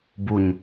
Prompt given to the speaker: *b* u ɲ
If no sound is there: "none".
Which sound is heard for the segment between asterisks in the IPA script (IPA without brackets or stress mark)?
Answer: b